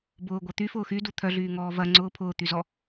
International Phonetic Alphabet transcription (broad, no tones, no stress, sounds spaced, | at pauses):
b ʊː ɡʷ ɐ t̪ y f ʊː x y d u t̪ʰ œ ɮ yː ŋ ɔː v ɐ ŋ͡ǀ ʊː pʰ ʊː t̪ y z ɔ